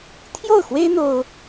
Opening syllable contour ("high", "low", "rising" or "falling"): falling